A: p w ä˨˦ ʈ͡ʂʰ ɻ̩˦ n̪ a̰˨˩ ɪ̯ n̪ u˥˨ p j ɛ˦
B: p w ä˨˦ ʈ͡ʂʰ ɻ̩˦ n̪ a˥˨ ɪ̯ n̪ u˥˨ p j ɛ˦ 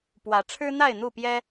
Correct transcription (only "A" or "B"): B